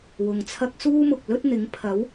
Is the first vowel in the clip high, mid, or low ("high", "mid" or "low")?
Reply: high